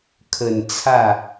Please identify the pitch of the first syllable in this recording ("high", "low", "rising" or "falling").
low